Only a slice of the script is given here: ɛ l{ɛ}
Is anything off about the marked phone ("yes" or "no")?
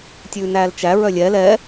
no